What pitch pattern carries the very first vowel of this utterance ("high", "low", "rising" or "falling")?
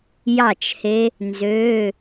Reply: falling